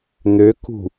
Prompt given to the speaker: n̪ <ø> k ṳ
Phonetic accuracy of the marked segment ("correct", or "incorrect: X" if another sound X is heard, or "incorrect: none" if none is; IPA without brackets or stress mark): correct